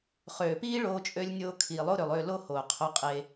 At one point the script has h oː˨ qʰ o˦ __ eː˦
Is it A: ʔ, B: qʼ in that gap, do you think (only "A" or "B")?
B